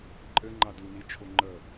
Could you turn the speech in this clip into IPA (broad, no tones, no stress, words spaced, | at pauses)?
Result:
ǃʼɘŋ͡ǃa dunit͡ʃʰo ŋ͡ǃə